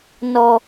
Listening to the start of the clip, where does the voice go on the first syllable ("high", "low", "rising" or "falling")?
low